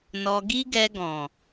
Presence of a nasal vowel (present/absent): present